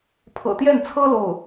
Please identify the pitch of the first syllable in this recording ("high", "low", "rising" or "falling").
low